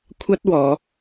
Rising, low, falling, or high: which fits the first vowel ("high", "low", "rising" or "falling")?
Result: high